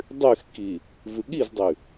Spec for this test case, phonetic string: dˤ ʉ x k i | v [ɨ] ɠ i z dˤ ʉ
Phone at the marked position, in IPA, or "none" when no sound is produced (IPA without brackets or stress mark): ɨ